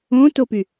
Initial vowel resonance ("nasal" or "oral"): nasal